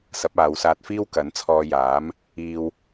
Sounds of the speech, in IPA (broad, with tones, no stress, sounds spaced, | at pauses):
s ɐ˨˥ p̚ aː˨˧ w s aː˧ t̚ f iː˥ w k ɐ˨˥ n t͡sʰ ɔː˧ j aː˨˥ m | iː˧ w